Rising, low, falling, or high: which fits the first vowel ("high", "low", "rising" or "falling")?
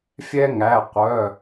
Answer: high